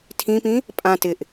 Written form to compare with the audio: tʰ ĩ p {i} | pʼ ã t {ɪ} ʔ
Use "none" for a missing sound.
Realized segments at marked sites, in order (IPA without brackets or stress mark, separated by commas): ĩ, ɪ